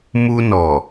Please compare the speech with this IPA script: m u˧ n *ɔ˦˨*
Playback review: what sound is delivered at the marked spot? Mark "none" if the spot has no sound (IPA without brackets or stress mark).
ɔ˨